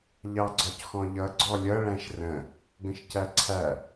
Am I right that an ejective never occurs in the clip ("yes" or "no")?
yes